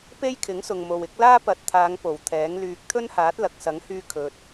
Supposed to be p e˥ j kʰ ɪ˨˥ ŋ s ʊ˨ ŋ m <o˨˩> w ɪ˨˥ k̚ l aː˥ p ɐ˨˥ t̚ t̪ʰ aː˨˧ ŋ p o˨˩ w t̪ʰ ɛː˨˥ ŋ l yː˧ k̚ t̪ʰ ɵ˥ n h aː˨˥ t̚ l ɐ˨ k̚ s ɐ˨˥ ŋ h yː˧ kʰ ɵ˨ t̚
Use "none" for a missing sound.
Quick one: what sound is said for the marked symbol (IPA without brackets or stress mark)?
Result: o˨